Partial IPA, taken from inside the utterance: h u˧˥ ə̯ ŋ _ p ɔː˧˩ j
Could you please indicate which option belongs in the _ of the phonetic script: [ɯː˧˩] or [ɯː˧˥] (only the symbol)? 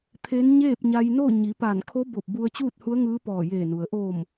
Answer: ɯː˧˥